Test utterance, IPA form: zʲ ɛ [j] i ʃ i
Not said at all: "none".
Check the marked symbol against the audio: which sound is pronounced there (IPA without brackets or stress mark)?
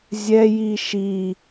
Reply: j